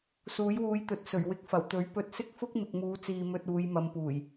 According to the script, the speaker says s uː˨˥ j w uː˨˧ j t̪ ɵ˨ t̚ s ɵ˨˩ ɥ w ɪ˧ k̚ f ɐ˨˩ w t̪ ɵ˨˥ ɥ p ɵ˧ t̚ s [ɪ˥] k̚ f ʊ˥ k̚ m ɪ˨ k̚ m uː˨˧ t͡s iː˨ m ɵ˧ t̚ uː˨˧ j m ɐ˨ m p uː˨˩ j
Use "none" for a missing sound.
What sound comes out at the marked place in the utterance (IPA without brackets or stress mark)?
ɪ˥